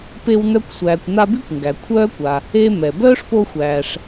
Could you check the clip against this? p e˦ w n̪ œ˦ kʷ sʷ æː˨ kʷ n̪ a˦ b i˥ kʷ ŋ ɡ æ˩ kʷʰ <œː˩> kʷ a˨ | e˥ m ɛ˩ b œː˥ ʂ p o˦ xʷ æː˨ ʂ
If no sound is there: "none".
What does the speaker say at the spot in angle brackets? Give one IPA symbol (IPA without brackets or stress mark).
œː˥